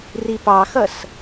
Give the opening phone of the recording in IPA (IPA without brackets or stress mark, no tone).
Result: r